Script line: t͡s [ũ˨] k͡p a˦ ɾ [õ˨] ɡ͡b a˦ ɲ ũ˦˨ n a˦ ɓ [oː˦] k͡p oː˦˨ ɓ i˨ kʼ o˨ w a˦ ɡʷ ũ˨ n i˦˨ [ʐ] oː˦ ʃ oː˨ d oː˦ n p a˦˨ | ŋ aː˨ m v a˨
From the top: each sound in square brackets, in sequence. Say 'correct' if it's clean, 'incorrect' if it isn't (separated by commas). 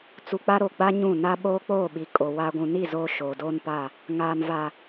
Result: incorrect, incorrect, correct, incorrect